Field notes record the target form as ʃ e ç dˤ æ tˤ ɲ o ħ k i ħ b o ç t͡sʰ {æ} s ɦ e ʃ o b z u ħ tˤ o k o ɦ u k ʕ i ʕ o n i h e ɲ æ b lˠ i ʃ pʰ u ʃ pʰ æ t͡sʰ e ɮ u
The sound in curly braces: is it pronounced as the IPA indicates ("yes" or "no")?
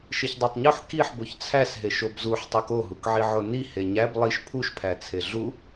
yes